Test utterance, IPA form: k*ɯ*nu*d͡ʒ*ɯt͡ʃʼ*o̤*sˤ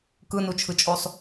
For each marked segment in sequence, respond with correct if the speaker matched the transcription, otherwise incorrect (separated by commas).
correct, incorrect, incorrect